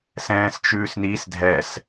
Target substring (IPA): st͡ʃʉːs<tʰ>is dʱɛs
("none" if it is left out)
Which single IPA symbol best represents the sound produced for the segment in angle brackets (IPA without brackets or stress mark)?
n